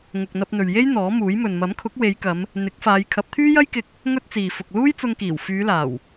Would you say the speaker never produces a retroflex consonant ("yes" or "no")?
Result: yes